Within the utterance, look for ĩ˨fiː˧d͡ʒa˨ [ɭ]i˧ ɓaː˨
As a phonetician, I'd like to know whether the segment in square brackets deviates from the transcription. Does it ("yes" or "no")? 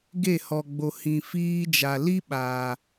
yes